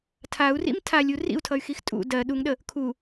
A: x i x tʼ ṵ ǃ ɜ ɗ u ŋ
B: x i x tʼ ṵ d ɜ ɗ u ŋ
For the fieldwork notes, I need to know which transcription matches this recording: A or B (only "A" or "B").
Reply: B